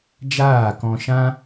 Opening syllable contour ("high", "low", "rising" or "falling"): falling